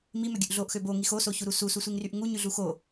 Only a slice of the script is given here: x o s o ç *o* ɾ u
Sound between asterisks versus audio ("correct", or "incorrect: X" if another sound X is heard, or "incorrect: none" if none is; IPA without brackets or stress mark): incorrect: u